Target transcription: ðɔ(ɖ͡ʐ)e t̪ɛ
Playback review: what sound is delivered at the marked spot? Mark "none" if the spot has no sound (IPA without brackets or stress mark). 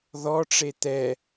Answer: ʈ͡ʂ